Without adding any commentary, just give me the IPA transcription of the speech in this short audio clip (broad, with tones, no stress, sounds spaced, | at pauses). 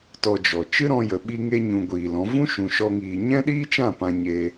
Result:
t ɔ˧ d͡ʒ ɔ˨ t͡ʃ ɨ˦ ɾ ɔ̃˧ j ə˨ ɓ i˧ ŋ e˧ ɲ ũ˨ ɡʷ iː˨ l ɔ̃˨˦ v ũ˦ ʃ ũ˨ ʃ ɔ˧ ŋ iː˨ ɲ ɛ̃˦ ɗ iː˦ t͡ʃ ã˦˨ p ã˧ ɲ eː˧